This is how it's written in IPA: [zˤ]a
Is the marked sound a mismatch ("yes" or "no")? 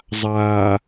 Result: no